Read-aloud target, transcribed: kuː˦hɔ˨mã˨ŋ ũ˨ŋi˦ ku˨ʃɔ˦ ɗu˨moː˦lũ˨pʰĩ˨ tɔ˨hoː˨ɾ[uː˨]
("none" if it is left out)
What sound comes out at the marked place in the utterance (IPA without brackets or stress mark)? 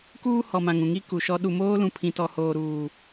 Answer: uː˨